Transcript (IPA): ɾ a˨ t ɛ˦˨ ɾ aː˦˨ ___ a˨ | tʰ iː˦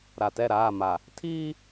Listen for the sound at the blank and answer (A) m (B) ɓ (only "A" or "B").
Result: A